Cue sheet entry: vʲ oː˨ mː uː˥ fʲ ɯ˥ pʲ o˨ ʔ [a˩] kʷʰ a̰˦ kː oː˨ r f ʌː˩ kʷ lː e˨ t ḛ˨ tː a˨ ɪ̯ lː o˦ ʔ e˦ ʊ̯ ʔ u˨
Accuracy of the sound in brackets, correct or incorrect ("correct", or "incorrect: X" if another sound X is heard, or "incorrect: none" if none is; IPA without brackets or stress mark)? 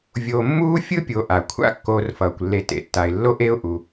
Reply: correct